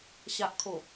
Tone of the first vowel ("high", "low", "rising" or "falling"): low